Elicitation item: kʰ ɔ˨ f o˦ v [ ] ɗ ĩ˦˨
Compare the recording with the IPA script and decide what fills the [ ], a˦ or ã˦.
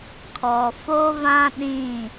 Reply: ã˦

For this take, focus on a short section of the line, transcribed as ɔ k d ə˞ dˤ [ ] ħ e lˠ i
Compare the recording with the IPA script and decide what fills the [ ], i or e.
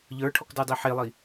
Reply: i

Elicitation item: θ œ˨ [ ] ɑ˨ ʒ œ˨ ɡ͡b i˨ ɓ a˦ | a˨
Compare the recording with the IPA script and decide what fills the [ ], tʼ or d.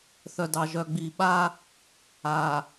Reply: d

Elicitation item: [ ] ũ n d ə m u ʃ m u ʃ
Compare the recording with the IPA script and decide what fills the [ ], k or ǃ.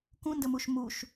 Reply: k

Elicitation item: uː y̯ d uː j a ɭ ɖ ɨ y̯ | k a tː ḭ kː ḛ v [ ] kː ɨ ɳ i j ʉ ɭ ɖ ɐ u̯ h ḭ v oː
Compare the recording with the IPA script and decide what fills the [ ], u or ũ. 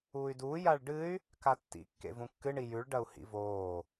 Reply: ũ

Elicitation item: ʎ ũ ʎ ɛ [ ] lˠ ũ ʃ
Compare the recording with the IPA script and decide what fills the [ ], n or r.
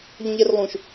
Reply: r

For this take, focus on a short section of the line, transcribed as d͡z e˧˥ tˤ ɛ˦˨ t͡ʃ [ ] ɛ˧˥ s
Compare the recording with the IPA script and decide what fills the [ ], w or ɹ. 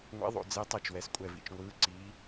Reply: w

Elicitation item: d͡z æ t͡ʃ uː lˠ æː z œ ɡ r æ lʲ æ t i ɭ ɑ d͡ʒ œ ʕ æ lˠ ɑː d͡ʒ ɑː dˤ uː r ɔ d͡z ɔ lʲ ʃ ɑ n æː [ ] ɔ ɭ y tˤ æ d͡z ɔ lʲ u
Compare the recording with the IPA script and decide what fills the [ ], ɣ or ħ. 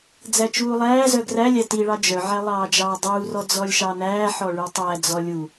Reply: ħ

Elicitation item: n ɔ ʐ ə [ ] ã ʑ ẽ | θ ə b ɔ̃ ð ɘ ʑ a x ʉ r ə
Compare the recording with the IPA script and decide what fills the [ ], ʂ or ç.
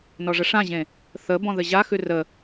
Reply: ʂ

